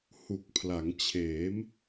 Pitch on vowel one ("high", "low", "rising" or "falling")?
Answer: low